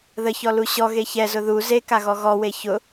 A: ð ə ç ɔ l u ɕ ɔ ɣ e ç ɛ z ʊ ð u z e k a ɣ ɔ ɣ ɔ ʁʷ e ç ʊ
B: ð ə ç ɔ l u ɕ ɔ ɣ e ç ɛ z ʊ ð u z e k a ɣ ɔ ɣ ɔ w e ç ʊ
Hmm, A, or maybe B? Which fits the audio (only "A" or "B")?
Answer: B